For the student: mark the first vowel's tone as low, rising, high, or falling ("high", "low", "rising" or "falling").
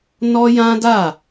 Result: high